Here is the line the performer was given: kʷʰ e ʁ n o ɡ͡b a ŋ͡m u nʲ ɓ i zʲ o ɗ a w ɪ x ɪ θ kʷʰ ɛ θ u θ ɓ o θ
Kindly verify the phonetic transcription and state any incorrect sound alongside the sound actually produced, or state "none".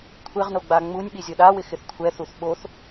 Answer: none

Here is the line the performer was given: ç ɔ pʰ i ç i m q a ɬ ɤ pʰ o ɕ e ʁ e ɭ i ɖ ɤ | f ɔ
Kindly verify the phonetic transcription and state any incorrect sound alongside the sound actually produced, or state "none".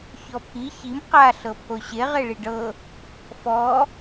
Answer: none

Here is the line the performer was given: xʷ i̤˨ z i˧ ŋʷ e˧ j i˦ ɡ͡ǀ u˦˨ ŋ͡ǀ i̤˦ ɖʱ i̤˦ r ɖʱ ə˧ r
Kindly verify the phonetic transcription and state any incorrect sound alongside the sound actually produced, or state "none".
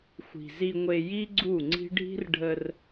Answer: none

